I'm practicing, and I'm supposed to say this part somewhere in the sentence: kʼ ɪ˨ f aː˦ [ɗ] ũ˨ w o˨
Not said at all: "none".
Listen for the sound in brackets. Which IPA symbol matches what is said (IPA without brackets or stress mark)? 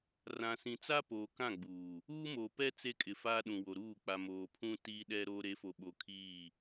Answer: ɗ